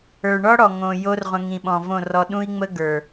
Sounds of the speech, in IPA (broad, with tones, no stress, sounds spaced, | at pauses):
ə˞˨ ɳ ɔ˦ ɽ ɔ˨ ŋ õ˨ j o˦ r ʁʷ ə̃˧ ŋ ĩ˨ ɓ ɔ̃˨ v õ˦˨ r ɔ˧ ɗ ũ˦ i̯ ŋ͡m ə˦ ɡ ə˞˨